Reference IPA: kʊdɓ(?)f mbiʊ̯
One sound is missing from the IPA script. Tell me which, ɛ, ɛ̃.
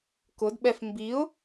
ɛ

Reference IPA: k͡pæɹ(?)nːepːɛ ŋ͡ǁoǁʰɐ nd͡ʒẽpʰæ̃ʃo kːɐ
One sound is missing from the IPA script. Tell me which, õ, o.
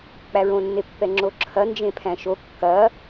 õ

